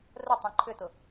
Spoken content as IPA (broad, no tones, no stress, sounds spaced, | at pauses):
r ə tˤ ĩ ǃʰ ʏ t ʊ